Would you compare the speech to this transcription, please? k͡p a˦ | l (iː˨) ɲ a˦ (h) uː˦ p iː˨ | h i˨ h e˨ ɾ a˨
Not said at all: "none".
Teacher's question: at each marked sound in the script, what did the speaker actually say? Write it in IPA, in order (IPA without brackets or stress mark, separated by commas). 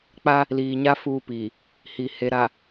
iː˨, f